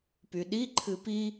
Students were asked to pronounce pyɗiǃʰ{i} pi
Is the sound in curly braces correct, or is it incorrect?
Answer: incorrect